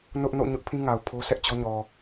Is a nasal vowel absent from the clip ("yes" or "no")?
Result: no